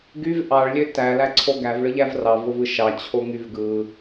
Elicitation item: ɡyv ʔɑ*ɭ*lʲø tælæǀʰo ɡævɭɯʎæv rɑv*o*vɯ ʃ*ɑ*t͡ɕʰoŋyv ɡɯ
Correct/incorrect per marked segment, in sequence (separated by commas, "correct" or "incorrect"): correct, correct, correct